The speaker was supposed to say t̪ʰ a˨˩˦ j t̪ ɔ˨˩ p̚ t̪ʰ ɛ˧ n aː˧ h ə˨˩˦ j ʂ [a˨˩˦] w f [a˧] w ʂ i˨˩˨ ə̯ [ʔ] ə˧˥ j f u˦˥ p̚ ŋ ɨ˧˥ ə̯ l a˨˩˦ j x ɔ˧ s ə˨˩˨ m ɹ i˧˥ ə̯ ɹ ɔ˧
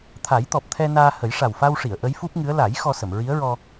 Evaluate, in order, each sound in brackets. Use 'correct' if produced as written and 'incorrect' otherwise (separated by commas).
incorrect, correct, correct